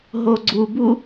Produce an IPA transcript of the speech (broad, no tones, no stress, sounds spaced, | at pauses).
ɦ o ɡ͡ǀ u b u